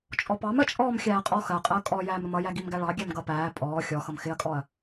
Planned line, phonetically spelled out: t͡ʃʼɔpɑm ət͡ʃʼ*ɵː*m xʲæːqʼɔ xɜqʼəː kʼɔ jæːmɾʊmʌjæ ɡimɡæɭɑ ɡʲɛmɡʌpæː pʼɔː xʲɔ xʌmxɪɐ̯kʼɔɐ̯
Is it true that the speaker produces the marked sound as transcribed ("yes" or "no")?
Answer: no